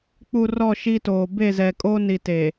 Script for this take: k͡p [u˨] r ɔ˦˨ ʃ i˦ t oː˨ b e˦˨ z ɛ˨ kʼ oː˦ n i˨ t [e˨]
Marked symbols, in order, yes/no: yes, yes

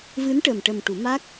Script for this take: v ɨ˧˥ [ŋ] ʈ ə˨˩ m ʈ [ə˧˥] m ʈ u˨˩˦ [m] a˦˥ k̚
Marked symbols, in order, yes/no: no, no, yes

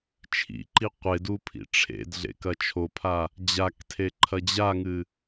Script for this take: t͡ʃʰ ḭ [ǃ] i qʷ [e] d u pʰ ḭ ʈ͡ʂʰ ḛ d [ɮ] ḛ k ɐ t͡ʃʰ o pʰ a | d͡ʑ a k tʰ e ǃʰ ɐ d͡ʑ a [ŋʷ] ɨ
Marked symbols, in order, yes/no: yes, yes, yes, no

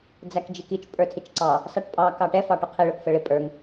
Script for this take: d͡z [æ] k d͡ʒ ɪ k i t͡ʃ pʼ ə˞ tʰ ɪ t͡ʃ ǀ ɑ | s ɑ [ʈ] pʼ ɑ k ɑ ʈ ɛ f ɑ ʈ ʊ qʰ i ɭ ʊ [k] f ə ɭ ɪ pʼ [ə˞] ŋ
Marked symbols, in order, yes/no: yes, yes, yes, yes

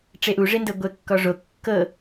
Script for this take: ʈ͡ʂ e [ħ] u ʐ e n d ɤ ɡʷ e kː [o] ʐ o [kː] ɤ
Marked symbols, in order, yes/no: no, no, yes

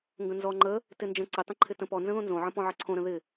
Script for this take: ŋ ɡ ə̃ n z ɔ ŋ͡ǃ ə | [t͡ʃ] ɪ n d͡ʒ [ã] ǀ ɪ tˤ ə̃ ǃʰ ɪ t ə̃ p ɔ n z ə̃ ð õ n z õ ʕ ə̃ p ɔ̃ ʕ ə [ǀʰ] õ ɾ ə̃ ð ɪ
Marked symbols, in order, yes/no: no, no, yes

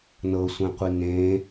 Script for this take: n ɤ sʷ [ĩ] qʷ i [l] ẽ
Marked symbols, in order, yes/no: no, no

